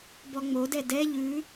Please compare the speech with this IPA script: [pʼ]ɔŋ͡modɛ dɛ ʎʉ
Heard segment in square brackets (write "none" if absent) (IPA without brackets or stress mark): b